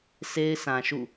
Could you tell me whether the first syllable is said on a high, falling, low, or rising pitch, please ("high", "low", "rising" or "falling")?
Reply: high